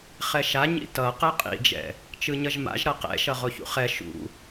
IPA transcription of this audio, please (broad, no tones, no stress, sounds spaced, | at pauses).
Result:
χ ɛ ʃ a ɲ ḭ t ʌ q ɛ qʼ ḭ d͡ʒ ɛ̰ | t͡ʃ ɯ ɲ ʌ ʒ m a̰ ʒ ɾ ʌ q ɛ̰ ʃ ʌ ʁ o ç ṵ χ ɛ ʃ ṵ